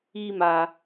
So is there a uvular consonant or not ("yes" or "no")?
no